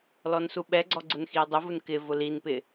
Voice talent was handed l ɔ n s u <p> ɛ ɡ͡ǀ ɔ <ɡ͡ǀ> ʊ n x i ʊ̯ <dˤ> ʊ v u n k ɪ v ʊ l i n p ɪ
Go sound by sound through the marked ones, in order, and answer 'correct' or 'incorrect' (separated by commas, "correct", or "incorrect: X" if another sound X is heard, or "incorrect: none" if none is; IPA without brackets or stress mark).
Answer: incorrect: ɓ, correct, correct